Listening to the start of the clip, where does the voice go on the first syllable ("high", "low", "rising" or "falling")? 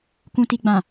low